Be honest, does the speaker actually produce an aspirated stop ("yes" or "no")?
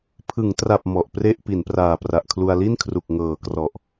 yes